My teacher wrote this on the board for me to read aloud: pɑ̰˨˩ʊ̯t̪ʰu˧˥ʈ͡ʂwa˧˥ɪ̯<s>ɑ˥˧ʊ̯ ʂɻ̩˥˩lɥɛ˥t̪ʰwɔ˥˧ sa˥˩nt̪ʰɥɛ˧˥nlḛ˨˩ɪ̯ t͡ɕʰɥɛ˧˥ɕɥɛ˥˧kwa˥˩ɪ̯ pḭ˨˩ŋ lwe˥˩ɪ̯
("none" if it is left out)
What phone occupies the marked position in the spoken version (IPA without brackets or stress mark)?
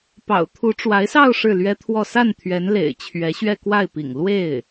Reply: s